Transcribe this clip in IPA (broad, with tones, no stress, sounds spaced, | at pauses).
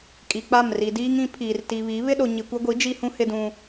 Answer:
kʼ i˨ k͡p a˦˨ m r i˨ d iː˦ ŋ ĩ˨˦ pʰ iː˨ r t i˨ β i˨˦ β ɪ˦ ɗ o˨ ɲ i˨ kʷ ɛ˦ ɡʷ i˨˦ d͡ʒ i˦ h ũ˦ h ɪ˦ d ũ˦